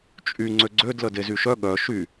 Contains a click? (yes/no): yes